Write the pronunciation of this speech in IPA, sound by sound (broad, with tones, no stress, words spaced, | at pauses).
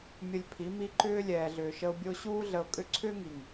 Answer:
mʲə˧lʲpʰi˨˦ mi˧ǃʏː˦ lʲɛː˨ɮʏː˨ʃə˧ʊ̯ bʲo˧ɕuː˦ ɮə˧ʊ̯kʼʏ˦ ǀʰʏː˦ŋi˨ŋ